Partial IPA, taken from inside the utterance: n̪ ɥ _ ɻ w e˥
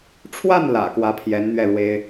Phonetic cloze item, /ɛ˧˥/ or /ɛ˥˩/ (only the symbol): ɛ˥˩